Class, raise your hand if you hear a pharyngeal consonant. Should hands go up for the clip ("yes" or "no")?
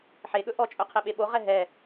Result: yes